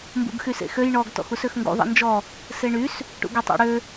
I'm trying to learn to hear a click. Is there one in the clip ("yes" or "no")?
no